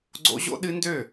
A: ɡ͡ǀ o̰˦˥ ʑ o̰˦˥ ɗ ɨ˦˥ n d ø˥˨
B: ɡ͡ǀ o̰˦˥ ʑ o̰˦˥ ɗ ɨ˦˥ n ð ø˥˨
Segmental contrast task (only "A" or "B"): A